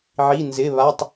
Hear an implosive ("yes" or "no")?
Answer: no